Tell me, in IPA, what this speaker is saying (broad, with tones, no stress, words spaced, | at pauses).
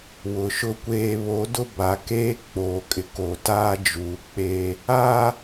wʊ˨ʃʊ˦kʷeː˦ βo˨˦dʊ˦ ba˨keː˦ k͡poː˨kʼɪ˨ko˨taː˦ d͡ʒuː˨k͡peː˦ | aː˦